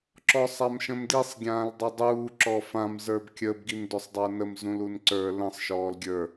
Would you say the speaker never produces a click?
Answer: no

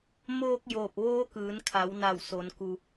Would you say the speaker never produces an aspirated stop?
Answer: no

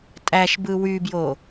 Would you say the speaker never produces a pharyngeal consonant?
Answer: yes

